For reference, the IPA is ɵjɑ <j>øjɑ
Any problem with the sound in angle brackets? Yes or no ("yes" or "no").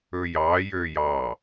no